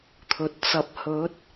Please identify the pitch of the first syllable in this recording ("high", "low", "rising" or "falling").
low